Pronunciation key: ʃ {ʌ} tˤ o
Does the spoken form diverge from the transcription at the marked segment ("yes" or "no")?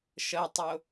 no